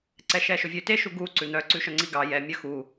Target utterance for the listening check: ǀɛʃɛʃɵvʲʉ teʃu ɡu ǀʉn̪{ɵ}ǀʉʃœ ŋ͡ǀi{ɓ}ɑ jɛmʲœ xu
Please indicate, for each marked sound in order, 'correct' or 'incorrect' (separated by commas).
incorrect, incorrect